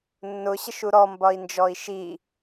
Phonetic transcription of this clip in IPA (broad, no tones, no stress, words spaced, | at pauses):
nːʊɕəʃu ɾɔmbɒi̯nd͡ʒɔi̯ ʃi